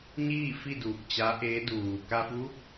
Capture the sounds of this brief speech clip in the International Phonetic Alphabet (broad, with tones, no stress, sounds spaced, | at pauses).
ɲ iː˥˨ f i˥˨ d uː˧˩ k̚ t͡ɕ a˧˥ ʔ eː˧˥ d uː˩ k a˧ f uː˧˥ k̚